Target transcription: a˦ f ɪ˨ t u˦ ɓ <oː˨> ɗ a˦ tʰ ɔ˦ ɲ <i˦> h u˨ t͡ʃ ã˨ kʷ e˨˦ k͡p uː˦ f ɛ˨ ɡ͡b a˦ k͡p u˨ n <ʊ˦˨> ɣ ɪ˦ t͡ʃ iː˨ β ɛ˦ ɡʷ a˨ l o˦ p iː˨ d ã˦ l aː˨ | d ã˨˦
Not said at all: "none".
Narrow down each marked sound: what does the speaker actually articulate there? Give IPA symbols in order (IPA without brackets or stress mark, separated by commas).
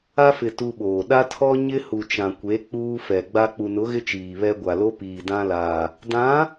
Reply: oː˨, ɪ˦, ʊ˨˦